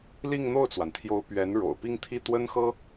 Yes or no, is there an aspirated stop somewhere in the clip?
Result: yes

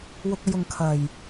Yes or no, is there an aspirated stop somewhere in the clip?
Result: yes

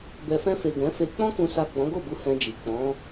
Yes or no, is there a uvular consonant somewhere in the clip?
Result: no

